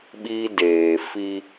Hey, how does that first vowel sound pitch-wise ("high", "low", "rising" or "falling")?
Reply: high